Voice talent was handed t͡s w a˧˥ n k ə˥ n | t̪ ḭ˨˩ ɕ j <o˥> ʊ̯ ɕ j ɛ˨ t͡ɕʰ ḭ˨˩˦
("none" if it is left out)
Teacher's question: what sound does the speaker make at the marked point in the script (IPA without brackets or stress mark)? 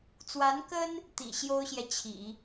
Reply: o˥